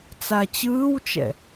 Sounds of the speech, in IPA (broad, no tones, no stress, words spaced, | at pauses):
t͡sat͡ɕɯːwt͡ʃɛ̰